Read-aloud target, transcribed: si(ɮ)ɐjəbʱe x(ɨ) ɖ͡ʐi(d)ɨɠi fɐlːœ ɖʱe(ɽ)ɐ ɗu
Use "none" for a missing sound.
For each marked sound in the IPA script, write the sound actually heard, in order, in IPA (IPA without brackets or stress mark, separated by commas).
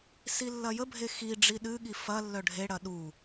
lː, i, ɗ, ɽ